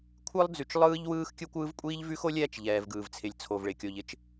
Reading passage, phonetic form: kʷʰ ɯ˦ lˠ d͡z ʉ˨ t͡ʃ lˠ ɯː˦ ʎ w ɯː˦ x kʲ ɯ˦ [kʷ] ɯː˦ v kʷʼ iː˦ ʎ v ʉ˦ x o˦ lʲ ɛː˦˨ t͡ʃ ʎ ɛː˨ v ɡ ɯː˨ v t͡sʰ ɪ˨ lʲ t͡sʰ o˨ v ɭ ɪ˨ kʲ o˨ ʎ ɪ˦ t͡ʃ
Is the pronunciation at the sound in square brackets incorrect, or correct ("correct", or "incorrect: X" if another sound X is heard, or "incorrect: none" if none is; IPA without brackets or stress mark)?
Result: correct